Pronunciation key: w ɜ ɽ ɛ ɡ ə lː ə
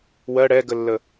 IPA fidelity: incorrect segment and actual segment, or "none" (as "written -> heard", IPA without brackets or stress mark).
none